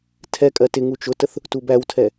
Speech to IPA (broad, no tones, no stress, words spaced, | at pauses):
tʰɛkʼɜ tɪ ŋut͡ʃʊtəθ | tubæwtʰɛ